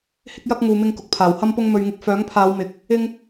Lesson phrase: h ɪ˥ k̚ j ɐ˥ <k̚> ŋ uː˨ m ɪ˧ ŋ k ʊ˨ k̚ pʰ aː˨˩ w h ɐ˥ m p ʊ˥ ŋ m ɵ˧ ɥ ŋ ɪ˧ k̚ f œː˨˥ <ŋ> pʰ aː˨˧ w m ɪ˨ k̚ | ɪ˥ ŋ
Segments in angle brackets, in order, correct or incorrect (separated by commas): correct, correct